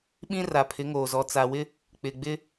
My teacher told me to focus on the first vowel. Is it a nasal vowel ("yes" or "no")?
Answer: yes